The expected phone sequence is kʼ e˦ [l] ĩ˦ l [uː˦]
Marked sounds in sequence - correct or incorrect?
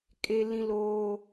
correct, incorrect

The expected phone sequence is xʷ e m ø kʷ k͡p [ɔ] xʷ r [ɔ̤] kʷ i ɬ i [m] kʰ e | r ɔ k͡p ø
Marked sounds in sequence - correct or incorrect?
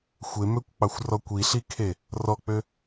incorrect, incorrect, incorrect

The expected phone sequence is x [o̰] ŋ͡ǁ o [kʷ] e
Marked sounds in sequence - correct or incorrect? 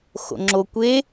correct, correct

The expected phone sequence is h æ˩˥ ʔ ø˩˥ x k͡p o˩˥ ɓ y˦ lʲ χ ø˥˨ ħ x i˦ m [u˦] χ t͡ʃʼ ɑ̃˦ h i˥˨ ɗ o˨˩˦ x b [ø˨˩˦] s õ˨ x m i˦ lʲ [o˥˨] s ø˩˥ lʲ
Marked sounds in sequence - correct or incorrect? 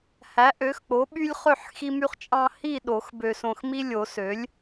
incorrect, incorrect, incorrect

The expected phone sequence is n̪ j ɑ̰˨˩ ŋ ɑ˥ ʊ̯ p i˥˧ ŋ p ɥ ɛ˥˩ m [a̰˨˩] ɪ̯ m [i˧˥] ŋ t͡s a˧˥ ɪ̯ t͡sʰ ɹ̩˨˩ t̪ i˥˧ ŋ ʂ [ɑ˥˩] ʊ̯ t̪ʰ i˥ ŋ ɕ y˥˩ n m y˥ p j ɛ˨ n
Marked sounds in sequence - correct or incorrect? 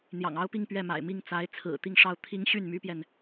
correct, incorrect, correct

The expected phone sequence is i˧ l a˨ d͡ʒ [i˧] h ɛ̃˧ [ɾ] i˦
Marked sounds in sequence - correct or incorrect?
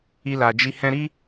correct, correct

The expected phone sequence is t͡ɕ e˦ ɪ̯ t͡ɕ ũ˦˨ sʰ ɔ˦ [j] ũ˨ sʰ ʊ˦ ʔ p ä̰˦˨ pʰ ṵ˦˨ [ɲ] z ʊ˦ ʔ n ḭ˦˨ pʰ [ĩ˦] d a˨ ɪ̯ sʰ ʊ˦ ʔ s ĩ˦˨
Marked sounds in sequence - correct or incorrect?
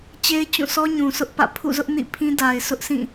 incorrect, incorrect, correct

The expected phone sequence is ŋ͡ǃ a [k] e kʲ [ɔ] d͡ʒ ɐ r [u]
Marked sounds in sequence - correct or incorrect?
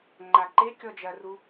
incorrect, correct, correct

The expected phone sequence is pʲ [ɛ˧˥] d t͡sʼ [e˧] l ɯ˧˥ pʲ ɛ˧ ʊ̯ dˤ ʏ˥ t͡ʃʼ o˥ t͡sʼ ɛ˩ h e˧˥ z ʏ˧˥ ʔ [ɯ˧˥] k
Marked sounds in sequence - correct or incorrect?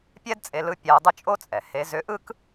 incorrect, correct, incorrect

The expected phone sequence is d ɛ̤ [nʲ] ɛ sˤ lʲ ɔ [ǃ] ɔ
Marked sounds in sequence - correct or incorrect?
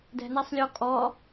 incorrect, incorrect

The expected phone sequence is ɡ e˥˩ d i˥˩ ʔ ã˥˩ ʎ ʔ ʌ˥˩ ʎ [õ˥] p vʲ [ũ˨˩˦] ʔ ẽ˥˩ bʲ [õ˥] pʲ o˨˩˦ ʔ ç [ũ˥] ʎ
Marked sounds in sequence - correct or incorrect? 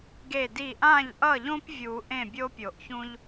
correct, incorrect, incorrect, correct

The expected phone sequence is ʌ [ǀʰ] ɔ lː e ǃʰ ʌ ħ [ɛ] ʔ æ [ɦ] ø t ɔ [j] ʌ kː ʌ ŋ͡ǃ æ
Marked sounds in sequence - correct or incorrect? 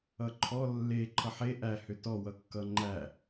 incorrect, incorrect, incorrect, incorrect

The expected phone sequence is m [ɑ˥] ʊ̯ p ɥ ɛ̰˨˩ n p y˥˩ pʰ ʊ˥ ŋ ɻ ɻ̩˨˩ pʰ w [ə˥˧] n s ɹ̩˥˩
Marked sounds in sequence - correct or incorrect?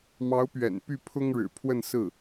incorrect, correct

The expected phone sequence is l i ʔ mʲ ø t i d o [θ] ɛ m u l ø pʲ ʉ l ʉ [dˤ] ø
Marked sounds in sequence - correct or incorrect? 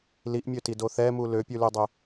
correct, correct

